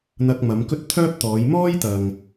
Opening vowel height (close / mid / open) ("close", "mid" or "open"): open